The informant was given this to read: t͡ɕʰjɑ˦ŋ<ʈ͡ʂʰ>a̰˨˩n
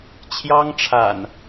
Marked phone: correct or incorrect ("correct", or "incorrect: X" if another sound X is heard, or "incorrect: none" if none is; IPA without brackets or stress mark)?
correct